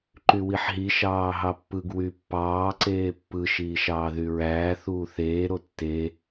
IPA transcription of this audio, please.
ǃ y w i ħ ɦ i ʃ ɑː ɦ ɑ pː ɯ ɡ w y pː ɑː ǀ eː pː ɯ ʃ iː ʃ ɑː ð y ɹ æː θ uː θ eː ɾ o tː e

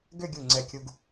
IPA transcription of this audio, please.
ɡ ʏ˥˧ ɡʲ u˧˩ ŋ͡ǀ ɛ˧˩ kʲ u˧ ɡ

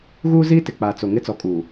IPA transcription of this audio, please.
ɣ uː˦ z iː˦ t ɪ˨ k͡p aː˨ t͡s o˨ ŋ ɪ˦ t͡s ɔ˨˦ kʼ uː˨

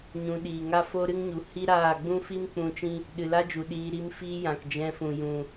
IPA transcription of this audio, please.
ɲ ũ˧ ɗ iː˨ ŋ a˦ f o˦ ɾ ɨ˦ ŋ ɲ u˨ h i˦ ɾ aː˦˨ ɡ͡b ũ˦ f i˦ m k͡p ũ˧ t͡ʃ ĩ˦ | ɗ ɨ˨ l a˦ d͡ʒ u˨ ɗ iː˧ ɾ i˧ m f iː˦ j ã˨ k d͡ʒ ɛ̃˧ f ũ˨ j ũ˨

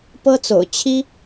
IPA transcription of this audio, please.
p ɤ˥ t͡s o̰˨˩ ʊ̯ t͡ɕʰ i˥

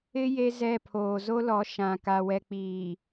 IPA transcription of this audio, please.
ɪ˦ j e˦ z ɛ˦˨ pʰ oː˨ z o˦ l ɔ˨˦ ʃ ã˨ k a˨ w ɛ˨ k͡p iː˨

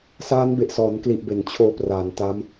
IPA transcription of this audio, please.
s aː˦˥ n b e˨˩ ʔ s ɔː˩˦ n k l i˨˩ ʔ b e˩˦ n t͡ɕʰ oː˧ p r aː˩˦ n t a˦˥ m

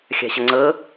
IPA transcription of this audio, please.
xʲ a̤ ɕ ə ŋ͡ǀ ɤ

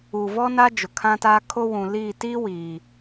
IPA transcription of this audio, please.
u˨ v ɔ˦ n a˦ d͡ʒ ʊ˨ kʰ ã˦ t aː˦ kʰ o˦ w ũ˨ l iː˦˨ t iː˦ w iː˨

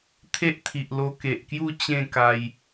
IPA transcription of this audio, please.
t̪ʰ e˦ ʔ t̪ʰ i˨ ʔ l o˧ k e˨ ʔ k j u˥˧ t͡ɕ ẽ˥˧ k a˧ j

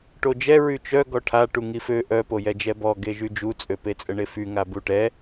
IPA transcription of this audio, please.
ʈ o d͡ʒ ɛ ɹ y t͡ʃ œ ɡ ɔ ʈʰ a ʈ u ŋ i f ø ʔ œ p o j ɛ d͡ʒ ɛ b ɔ ɡ e ʒ y d͡ʒ u t͡sʼ ø p e t͡sʼ ə ɳ e f y ŋ a b u ʈ ɛ

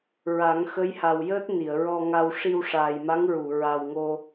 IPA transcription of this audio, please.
ɹ a˨˩˦ ŋ x ə˧˥ j h a˨˩ w j əː˦˥ t̚ n i˨˩˨ ə̯ ɹ ɔ˧ ŋ a˧ w ʂ i˧ w ʂ aː˨˩ j m a˧˥ ŋ ɹ u˨˩˨ ɹ a˨˩ w ŋ o˧

